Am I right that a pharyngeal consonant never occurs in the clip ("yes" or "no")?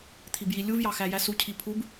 yes